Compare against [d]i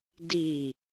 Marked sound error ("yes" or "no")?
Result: no